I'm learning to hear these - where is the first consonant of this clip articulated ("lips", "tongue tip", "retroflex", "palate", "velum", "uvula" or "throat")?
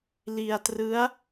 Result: tongue tip